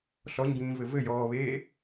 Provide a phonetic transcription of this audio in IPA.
ɬ ɔ ɲ b ĩː v ɘ v ɘ j ɔː β eː

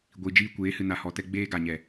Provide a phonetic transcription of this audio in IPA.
ɡʷ i˨ d͡ʒ iː˧ kʷ eː˨˦ h ɨ˨ n a˨ h ɔ˨ t ɛ˧ ɡ͡b eː˦ ɡ a˨ ɲ ɛ˨

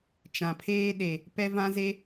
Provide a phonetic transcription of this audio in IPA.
t͡ʃ ã˨ pʰ eː˦ ɗ e˨ | p ɛ˦ v ã˦ z e˦

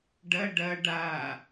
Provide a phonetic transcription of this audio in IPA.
ɖ ɐ ɖ ɐ ɖ a

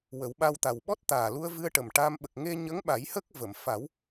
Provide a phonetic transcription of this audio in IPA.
w ə˨˩˦ w ɓ a˧ w t̪ a˨˩ w ɓ ɔ˦˥ t̚ t̪ aː˨˩ l u˧ ə̯ v ɨ˧ ə̯ ʈ ə˨˩ m ʈ a˧ m ɓ ə˨˩ k̚ ŋ e˧ ɲ ə˧˥ ŋ ɓ a˨˩˦ j h ə˦˥ k̚ v ə˨˩˨ m f a˨˩˦ w

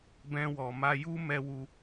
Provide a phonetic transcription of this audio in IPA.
b ɛ̃˦ w ɔ˧ m a˦ j u˦ m ɛ˦ w u˦

